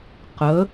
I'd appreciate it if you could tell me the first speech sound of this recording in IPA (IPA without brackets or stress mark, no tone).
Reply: q